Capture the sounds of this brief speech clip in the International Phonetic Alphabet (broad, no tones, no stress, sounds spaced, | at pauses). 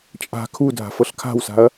t͡ʃʼ a̤ kʰ u dʱ a̤ f ɤ ɬ kʰ a̤ w s a̤ ɐ̯